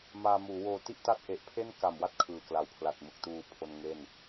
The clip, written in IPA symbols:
m aː˧ m uː˩˦ w oː˧ t i˥˩ ʔ t a˥˩ t̚ ʔ e˨˩ ʔ pʰ e˥˩ n k a˨˩ m w a˦˥ t̚ kʰ ɯː˨˩ k l a˩˦ w pʰ l a˨˩ t̚ m ɯ˨˩ k̚ t uː˨˩ pʰ o˧ n ŋ e˥˩ n

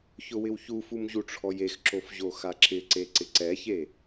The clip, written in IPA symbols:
ç ʊ w ɪ w ç u f u m ʑ u ʈ͡ʂʰ ɔ j e x ǁ o f ʑ o x a ǁ ɪ ǀ e ǀ ɪ ǀ ɛ ç e

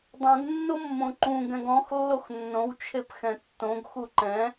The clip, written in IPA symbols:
dˤ õ ɡ nː o mː õ ǃ ũ ɡ ɛ̃ ɡ ɔ̃ x lː o x nː õ w t͡ʃʰ e p x ɛ̃ tː õ ɡ x u ǃ ɛ̃

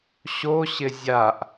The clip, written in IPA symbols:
ɕ o ɕ ɪ zʲ a ʔ

